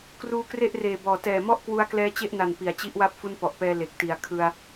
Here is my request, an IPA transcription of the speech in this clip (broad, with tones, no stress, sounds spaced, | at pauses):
k r uː˦˥ k r e˥˩ ʔ r eː˨˩ b ɔː˨˩ t ɛː˨˩ m ɔ˥˩ ʔ k w u˦˥ a̯ k l ɛː˦˥ t͡ɕ e˥˩ ʔ n a˨˩ n p i˨˩ a̯ t͡ɕ i˦˥ ʔ w a˦˥ p̚ f u˦˥ n p ɔ˨˩ ʔ p ɛː˧ l e˨˩ k̚ t i˩˦ a̯ kʰ ɯ˧ a̯